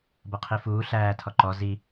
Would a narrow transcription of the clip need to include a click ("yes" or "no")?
yes